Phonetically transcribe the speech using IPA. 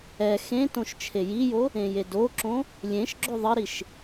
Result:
ɛ xẽtõʃ t͡ʃʰejijo | ẽjedoǁõ | lʲẽʃɡ͡ǁo ðˤəɾiʃ

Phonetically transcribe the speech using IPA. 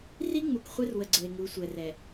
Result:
ri˦ ŋ͡mu˨kχʷe˦rwə˨ ɡ͡ǀə˨e̯ŋu˨˦sʷɛ˨rɛ˨

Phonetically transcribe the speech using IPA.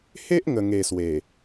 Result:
he˦ʔŋə˨˩ŋe˨˩ swe˨˩

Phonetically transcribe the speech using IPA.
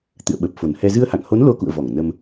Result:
t̪ɨ̰˧˨ə̯ɓə˨˩p̚ fo˨˩nhɛ˧ zɨ˧ə̯ha̰˧˨ŋho˨˦n lo˧kṵ˧˨ə̯ vɔ˧˩ŋ nə˧m

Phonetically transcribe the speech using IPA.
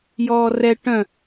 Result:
jɔːrɛ ʈœ̃

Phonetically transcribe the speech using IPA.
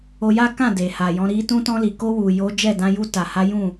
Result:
o˧ja˦kã˦˨ de˨ha˨jɔ̃˨˦ ɾi˧ tũ˧tɔ̃˧li˨ko˧ wu˨jo˨˦ d͡ʒɛ˦˨dã˧ ju˧ta˨ ha˨˦jũ˦˨

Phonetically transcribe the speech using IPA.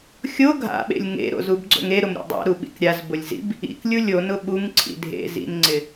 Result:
xʲo ɡʱa̰ɓḛlʲ ŋḛɾo̰zubɡ͡ǀo̰ŋ eɾʊmɾʲo̰ dˤa̰ɾuɓḭk ɾʲazbʊlʲzḭb | ḭklʲu lʲonʊ ɓuŋǀʰḭ dʱḛ zḭnŋ͡ǀɪ

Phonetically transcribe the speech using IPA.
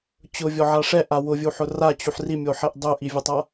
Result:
t͡ɕʊvʲɔʕa ʂɛʔa wʊvʲuħʊ rat͡ɕuħ rimʲoħɛʔ dˤʊʔivʲʊtˤa

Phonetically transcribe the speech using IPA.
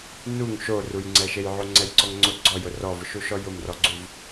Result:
nuŋ ʃorujŋ͡ǀɛʃej ʕoŋ͡ǀɛjǀɔŋŋ͡ǀʊ ɡ͡ǀɔjʊ rɔvʊʃuʃɔ jʊmrɔɡ͡ǀuv

